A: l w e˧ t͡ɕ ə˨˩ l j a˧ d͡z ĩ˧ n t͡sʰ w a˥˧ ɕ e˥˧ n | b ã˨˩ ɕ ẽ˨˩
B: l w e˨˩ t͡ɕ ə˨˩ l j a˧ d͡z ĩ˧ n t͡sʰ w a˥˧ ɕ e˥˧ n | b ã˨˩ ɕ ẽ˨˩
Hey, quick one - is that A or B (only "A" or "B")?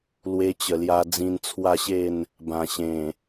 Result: A